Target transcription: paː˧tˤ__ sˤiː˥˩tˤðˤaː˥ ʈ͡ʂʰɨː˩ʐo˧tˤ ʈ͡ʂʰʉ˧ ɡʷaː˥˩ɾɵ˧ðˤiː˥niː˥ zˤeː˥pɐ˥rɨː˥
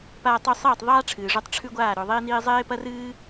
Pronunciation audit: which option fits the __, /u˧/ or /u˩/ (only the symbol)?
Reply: u˧